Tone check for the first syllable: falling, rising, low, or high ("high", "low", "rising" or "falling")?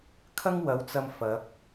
high